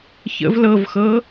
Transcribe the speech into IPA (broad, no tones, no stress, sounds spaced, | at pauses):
ç ə̰ v l ɤ v x ɤ